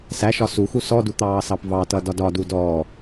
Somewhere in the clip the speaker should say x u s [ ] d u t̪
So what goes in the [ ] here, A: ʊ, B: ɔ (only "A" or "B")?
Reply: B